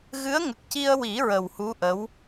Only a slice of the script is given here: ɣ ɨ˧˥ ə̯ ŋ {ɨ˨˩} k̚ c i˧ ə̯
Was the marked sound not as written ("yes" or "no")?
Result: yes